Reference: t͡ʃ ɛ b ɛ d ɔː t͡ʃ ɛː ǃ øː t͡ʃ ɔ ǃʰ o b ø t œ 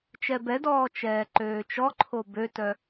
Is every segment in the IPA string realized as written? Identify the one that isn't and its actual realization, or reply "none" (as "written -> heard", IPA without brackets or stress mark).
none